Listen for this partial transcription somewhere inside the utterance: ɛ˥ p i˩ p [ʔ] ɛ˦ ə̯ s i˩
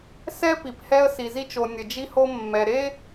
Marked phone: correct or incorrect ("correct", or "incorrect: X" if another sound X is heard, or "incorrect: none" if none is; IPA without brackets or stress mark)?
incorrect: h